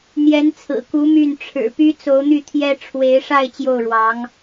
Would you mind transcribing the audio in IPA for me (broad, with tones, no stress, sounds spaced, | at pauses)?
n̪ j ɛ˧˥ n t͡sʰ ɹ̩˨˩ k u˧˥ m y˥˩ n ʈ͡ʂʰ ɻ̩˨˩ p y˥ t͡s o˧˥ ʊ̯ n̪ y˥˩ t̪ʰ j ɛ˥ ʈ͡ʂʰ w e˧˥ ɪ̯ ʂ a˥˧ ɪ̯ t͡ɕ j o˥˩ ʊ̯ ɻ w ɑ˧˥ ŋ